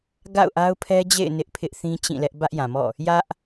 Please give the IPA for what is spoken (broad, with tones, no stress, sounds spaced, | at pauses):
ɡ a̰˦˨ ʊ̯ ʔ a˦ ʊ̯ pʰ ɛ˦ d͡ʑ ḛ˦˨ ɪ̯ n ɪ˦ ʔ pʰ ɪ˦ ʔ θ ĩ˦ t͡ɕ ĩ˦˨ l ɛ˦ ʔ b ä˦ ʔ j ã˨ m ɔ̰˦˨ | j ä˦ ʔ